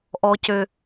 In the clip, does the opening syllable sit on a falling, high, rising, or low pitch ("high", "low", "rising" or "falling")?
low